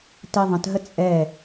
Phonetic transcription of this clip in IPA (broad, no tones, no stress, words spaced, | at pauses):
tiðˤə̃tɦə t͡sʼɛ